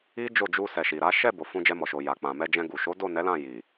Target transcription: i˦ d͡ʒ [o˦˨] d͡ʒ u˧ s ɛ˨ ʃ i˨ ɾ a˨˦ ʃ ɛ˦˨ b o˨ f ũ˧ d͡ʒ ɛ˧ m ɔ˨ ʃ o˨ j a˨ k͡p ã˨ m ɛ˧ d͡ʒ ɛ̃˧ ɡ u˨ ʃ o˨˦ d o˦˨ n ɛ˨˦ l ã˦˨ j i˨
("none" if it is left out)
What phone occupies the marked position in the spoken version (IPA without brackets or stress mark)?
o˦˨